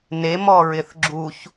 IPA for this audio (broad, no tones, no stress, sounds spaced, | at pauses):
n e m ɔ ɹ ɪ θ ɡ͡ǁ u ç